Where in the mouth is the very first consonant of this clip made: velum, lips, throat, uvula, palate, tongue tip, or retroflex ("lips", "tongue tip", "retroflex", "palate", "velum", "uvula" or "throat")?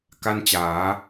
velum